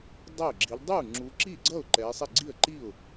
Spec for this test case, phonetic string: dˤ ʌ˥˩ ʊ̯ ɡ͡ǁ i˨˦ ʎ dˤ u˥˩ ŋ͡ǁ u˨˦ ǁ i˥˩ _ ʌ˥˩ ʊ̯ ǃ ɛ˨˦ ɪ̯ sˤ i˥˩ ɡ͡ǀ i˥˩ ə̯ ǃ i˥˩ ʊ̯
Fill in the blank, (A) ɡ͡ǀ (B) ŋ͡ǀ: A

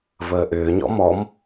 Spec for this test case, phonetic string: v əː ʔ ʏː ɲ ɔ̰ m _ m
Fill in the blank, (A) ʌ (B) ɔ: B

